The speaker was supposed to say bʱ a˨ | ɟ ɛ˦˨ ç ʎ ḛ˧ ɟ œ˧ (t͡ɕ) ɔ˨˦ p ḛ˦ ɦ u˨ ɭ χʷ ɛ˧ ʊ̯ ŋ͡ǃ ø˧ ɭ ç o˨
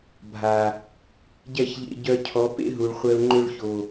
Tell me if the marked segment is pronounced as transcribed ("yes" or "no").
no